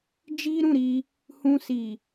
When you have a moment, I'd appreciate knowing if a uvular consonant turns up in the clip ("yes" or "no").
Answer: no